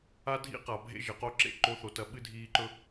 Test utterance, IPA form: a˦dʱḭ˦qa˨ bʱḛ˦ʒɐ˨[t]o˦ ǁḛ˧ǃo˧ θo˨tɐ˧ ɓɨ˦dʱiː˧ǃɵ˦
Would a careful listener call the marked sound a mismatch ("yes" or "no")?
yes